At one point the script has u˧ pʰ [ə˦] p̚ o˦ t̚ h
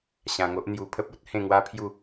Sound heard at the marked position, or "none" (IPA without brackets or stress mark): ə˦